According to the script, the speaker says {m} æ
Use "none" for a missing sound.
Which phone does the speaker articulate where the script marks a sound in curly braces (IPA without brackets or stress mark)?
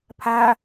pʰ